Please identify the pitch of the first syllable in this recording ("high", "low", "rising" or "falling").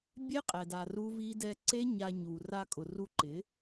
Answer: high